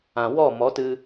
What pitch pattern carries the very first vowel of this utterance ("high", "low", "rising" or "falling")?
low